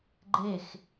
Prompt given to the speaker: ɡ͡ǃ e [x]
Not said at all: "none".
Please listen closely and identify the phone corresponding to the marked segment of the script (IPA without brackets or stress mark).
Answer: x